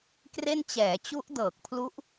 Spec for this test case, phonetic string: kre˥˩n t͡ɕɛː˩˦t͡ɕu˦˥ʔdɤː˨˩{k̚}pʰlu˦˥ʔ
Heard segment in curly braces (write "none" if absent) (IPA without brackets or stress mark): k̚